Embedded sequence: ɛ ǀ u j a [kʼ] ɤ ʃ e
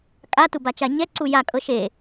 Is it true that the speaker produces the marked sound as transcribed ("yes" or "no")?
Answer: yes